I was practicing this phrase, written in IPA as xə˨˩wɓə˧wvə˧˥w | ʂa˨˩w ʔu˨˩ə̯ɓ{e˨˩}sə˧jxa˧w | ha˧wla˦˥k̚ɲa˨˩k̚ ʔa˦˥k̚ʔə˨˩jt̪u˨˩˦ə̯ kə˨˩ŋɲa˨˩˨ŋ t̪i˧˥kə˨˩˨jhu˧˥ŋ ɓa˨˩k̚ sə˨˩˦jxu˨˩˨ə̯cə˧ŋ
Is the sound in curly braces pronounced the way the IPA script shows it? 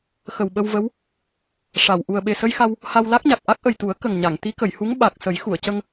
yes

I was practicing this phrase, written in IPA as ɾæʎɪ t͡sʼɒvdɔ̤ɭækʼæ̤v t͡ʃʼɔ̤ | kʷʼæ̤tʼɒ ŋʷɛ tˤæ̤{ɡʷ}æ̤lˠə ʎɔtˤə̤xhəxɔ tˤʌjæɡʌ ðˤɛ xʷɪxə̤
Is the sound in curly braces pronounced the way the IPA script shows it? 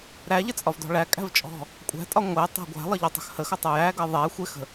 yes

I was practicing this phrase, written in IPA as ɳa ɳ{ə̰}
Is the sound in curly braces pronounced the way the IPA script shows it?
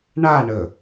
no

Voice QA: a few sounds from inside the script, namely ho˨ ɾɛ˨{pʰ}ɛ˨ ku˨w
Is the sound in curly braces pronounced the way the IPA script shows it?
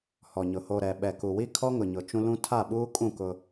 no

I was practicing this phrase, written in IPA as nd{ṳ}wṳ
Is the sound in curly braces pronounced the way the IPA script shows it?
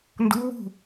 no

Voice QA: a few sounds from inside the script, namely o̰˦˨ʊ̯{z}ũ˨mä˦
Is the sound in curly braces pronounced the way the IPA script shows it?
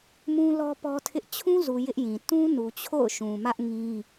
no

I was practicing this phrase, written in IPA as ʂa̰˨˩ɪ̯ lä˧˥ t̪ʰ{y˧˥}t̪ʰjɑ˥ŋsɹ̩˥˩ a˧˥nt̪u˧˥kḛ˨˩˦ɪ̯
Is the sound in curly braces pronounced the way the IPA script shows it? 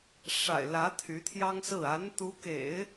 yes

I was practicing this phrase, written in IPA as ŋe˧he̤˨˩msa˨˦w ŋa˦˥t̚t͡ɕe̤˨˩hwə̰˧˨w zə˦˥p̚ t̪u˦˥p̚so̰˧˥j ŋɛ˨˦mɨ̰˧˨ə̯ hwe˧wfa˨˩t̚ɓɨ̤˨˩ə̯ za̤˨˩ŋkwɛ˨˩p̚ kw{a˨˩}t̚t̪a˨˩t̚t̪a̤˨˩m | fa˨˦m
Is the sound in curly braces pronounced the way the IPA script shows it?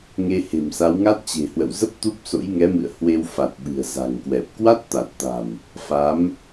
no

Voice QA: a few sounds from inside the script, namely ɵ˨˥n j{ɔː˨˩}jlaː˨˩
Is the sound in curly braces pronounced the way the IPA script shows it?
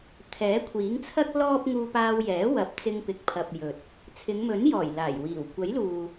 yes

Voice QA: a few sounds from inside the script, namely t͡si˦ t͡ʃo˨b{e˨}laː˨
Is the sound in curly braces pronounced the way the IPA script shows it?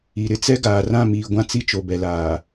no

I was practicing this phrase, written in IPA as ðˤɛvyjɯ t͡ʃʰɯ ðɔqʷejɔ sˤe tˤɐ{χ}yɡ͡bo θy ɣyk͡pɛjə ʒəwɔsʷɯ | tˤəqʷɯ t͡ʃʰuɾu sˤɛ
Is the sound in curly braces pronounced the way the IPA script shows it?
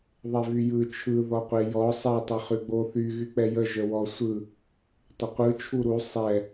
yes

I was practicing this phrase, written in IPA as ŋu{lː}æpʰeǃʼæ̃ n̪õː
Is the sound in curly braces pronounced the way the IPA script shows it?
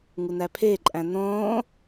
no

